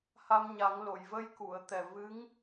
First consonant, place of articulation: glottal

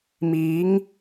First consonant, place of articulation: labial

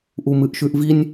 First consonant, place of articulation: glottal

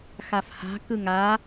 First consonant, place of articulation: velar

